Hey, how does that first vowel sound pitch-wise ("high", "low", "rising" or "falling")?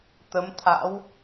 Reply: rising